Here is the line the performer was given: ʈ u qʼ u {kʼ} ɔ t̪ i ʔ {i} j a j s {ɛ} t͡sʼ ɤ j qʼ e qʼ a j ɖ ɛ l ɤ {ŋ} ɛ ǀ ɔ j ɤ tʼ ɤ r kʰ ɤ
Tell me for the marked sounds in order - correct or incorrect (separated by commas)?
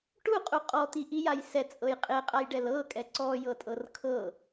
incorrect, correct, correct, incorrect